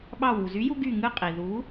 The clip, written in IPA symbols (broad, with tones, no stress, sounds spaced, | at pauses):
ɓ ɑ˧˩ w u˩ z y˨˥ j u˧ ɡ y˧˩ ŋ ɯ˥˩ qʼ i˩ ð u˨˥